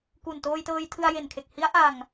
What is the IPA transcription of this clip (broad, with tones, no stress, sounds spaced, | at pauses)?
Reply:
k u˨˩ n t oː˧ j t ɤː˧ j tʰ ɯ˧ a̯ j e˨˩ n kʰ e˨˩ k̚ h i˦˥ a̯ ʔ a˧ ŋ